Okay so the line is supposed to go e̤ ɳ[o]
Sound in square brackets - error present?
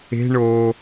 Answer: no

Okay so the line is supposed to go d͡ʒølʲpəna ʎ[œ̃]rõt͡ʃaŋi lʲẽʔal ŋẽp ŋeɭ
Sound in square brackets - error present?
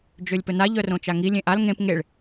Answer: yes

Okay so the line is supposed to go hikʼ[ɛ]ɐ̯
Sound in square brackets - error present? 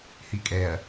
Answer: no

